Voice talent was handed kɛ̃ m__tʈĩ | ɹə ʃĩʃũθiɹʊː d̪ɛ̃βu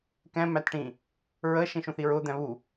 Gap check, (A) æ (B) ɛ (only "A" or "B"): A